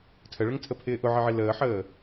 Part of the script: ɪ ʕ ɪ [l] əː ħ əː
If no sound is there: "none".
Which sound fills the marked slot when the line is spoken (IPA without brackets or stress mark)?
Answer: l